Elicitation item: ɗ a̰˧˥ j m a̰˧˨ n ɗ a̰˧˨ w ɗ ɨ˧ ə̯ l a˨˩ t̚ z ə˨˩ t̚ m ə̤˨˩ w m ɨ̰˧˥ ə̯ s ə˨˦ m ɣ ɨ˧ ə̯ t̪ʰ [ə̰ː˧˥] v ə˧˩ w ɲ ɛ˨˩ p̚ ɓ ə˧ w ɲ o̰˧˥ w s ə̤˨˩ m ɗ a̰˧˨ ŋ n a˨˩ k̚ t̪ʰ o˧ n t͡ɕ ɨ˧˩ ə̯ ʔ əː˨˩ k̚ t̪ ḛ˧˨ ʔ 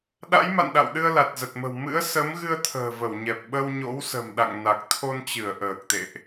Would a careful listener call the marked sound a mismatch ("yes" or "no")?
yes